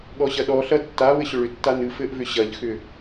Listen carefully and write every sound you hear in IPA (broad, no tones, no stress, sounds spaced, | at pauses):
ɠ ɔ ɕ ɐ ɗ ɔ ɬ ɐ tː a β ɘ ɕ ʏ ɭ ʏ tː a n ɨ f ɘ ʔ v ʏ ɕ ɐ ʎ x ʏ